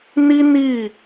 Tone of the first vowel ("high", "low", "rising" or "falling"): high